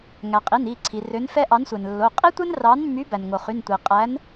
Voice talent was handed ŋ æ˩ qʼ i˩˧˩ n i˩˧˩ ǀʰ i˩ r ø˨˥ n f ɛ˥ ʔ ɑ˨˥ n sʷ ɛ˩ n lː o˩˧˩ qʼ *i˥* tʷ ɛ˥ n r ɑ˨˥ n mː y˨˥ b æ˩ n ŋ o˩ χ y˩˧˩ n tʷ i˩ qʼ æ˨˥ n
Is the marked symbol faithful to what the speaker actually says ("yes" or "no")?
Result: yes